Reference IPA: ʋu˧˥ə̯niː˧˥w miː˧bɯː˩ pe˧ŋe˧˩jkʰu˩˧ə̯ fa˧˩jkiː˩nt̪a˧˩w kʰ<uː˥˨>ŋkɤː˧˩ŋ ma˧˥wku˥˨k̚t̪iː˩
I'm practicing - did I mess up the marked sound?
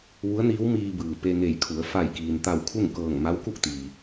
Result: yes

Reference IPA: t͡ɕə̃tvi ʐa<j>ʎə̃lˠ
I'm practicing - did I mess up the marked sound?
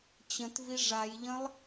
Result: no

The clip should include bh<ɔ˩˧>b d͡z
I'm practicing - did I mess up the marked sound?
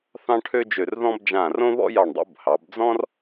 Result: yes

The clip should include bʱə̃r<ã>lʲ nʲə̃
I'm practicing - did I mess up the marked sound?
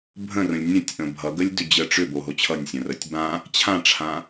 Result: yes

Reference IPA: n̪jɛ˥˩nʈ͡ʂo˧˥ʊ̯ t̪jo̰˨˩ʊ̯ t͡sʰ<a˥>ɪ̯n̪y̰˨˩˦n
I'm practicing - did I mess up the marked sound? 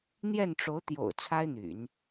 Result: no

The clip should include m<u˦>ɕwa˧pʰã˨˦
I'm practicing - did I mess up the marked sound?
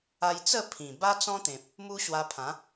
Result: no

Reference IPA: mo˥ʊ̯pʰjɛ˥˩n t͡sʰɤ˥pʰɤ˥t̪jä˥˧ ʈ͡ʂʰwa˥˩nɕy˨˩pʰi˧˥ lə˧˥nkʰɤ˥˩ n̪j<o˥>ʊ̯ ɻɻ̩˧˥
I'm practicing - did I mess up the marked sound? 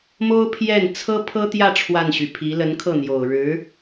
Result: yes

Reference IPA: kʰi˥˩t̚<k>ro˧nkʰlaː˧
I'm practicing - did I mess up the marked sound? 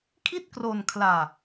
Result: no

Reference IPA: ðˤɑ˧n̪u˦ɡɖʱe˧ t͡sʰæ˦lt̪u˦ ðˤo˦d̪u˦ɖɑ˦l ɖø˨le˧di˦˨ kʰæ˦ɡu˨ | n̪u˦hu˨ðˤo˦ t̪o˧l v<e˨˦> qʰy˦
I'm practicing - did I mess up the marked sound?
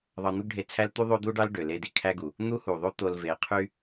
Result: no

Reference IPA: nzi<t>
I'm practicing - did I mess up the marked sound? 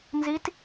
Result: no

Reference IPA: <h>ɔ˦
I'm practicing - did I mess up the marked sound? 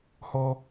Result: no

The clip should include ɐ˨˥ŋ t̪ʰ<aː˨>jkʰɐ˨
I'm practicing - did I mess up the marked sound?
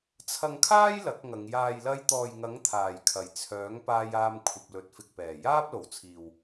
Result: no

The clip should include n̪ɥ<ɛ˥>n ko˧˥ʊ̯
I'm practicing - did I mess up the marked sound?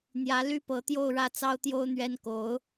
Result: no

